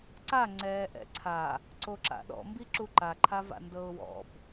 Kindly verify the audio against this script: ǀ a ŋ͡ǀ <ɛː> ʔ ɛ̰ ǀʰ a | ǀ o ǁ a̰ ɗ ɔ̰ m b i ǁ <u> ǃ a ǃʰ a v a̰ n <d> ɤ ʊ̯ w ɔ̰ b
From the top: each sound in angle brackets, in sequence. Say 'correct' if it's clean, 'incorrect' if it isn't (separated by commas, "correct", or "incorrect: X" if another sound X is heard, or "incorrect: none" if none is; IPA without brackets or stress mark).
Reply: correct, correct, correct